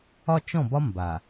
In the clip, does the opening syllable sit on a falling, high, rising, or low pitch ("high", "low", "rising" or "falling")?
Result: high